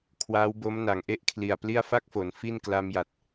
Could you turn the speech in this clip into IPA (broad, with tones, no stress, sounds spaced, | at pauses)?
kʰ w aː˦˥ w b o˦˥ m n a˩˦ ŋ ʔ e˥˩ ʔ kʰ l i˨˩ a̯ p l i˥˩ a̯ f a˥˩ k̚ f o˩˦ n f i˥˩ n k l a˧ m j a˨˩ t̚